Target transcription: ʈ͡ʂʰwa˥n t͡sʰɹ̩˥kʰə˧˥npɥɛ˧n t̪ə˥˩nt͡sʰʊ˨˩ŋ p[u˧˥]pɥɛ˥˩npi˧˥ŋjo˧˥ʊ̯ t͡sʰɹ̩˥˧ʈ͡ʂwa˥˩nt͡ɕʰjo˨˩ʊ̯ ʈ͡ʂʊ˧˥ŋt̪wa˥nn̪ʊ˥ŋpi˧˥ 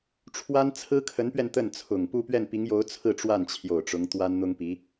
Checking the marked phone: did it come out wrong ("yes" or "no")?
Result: yes